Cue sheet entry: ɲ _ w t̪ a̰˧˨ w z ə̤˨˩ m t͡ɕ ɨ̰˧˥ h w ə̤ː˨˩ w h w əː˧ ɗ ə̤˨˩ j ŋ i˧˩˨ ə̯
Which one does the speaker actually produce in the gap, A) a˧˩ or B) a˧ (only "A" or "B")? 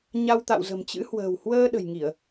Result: B